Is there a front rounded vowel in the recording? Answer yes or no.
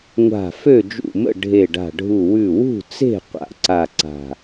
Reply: yes